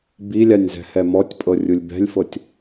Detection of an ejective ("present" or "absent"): present